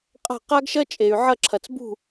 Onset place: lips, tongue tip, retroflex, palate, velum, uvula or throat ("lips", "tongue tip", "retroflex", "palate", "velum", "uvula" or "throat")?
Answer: uvula